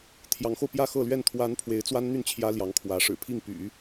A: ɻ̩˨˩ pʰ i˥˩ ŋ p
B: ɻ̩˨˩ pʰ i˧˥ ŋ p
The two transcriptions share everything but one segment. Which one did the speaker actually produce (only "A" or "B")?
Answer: A